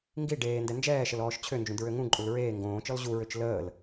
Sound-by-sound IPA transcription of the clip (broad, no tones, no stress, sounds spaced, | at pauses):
ŋ ɡ i ɖ eː n d ɛ n d͡ʒ ɛː ʃ ə l ɔː ʃ t͡ɕʰ ø n d͡ʒ ũ d ɹ ø ŋ ũ ǃʼ u l ɹ eː ŋ ɡ õː t͡ʃ ɔ l ʑ u ɹ ø t͡ʃ l əː l